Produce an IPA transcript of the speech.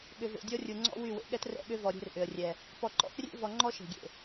ɠ ʏ˨ v ḛ˨ dʲ ɔ˦ rʲ u˨ ŋ͡ǀ ɔ̰˦ w y˦˨ w ḛ˨ ɠ ɛ˦ t r ɛ̰˦˨ ɠ ʏ˦ v ɔ˨ ɾʲ e̤˦ r ʔ ʏ˨ ə̯ rʲ ɛ˨ | p ɔ˨ ǃ ɔ̰˦ x rʲ ḛ˦ v ɔ˨ ŋ͡ǃ ɔ˦ ʃ e̤˨ ɡʲ ḛ˨

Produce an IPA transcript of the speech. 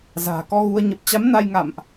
z a̤ː˨˩ k ɔ˧ ɣ u˧ ə̯ ɲ ə˨˩ p̚ t͡ɕ a˨˦ m n a˧ j ŋ a̰˧˨ m ʔ

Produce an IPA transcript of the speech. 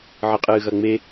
ʕ ɨ qʼ ɨː ɣ ɐ ŋ͡m e

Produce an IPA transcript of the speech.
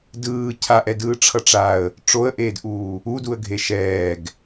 d ɯː cʰ a ʔ ɛ d ɯː ʈ͡ʂʰ ʌ ʈ͡ʂ a ə̯ | ʈ͡ʂ o ə̯ ʔ eː d ʔ uː | u d u ə̯ ɡʱ e ʃ ɛː ɡ

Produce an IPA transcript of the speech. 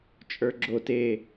t͡ʃʼ ə˞ ɡ͡ǁ o t e

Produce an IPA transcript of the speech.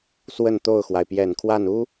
s w ə˥˧ n t̪ o˥˩ ʊ̯ x w a˩ ɪ̯ p j ɛ˨˩ n kʰ w a˥˩ n u˥

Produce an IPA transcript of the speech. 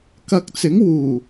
k ɐ˧ k̚ t͡s ɪ˨˥ ŋ w uː˨˩

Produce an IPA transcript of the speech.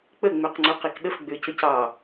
k͡p ə ŋ͡m ø q ŋ͡ǀ u q i k ɗ ə f ɡ͡b ø c ə c ɑ

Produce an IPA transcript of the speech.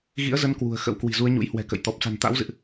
ɣ ḭ˧˥ ə̯ z ə˨˦ n k w ṳ˨˩ ə̯ x ə̰˧˥ w k w i̤˨˩ z u˨˦ ə̯ ɲ ṵ˧˥ j h w ɛ̤˨˩ k ə̰˧˨ j t̪ ɔ˨˩ p̚ s a̤˨˩ n t̪ a̰˧˥ w z ɨ̰˧˨ ʔ

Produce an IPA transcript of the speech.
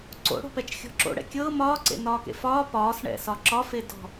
ǀ o̰ ɽ o̤ p ɛ t͡ʃ xʲ ɔ̤ ǁ o̰ ɽ ɛ̰ kʲ ɤː m ɒː ǀ ḛ n ɒː k ḛ f ɒː p ɒː s ɳ ɛ̰ s ɒ ǁ ɒ f e d ɔ̤

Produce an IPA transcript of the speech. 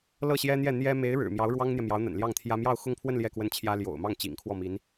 l ɤ˥˩ ɕ j ɛ˥ n̪ j ɛ˥˩ n̪ j ɛ˥ m e˧˥ ɪ̯ ɻ ɻ̩˨˩ m j ɑ˧˥ ʊ̯ ɻ w ɑ˥ ŋ n̪ j ɛ˨ m j ɑ˧˥ ʊ̯ n̪ ə̰˨˩ n l j ɑ˥˩ ŋ t̪ʰ j ä˥ m j ɑ˥˧ ʊ̯ x ʊ˥˧ ŋ pʰ w ə˥˧ n l j ɛ˥˧ k w ə˥˩ n t͡ɕʰ j ä˥ l j o̰˨˩ ʊ̯ m ɑ˥˩ ŋ t͡ɕ ḭ˨˩ ŋ kʰ w ɔ˥˩ m i˧˥ n

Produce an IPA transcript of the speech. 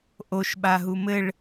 ʔ o ʃ ɓ a ɦ u m ɘ ɭ

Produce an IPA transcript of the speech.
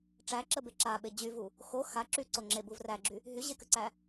ʈ͡ʂ æ ǁ ə b e ǁ a ɓ e d͡ʑ y v u | x o x a ǁ y ǀ o ŋ͡ǁ e b u v r æ ɡ͡ǁ y | ɦ y ʑ e k ə ǀ æ

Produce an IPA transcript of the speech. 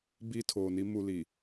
b iː˦ tʰ oː˨ n i˦ m u˦ l i˨

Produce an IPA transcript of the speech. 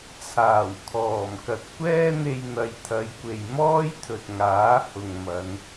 t͡sʰ aː˨˩ w kʰ ɔː˨˩ m k ɐ˨ t̚ kʷ ɛː˥ n̪ e˧ j n̪ ɐ˨ j t̪ʰ ɐ˨˧ j kʷ e˨ j m ɔː˥ j t̪ʰ ɵ˨ t̚ ŋ aː˨˥ h ʊ˨ ŋ m ɐ˨˧ n

